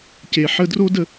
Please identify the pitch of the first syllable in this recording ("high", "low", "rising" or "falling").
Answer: low